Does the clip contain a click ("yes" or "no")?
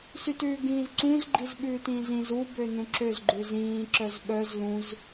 yes